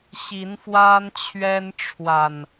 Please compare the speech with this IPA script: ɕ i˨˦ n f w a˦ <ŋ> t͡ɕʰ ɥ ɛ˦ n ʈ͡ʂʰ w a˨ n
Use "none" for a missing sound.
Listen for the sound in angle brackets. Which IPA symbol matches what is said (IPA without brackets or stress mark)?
n